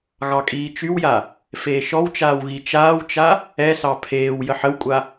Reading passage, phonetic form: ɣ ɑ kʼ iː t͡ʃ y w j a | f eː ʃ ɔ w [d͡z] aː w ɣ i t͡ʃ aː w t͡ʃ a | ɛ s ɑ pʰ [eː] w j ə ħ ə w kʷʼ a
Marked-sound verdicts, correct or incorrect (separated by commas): incorrect, correct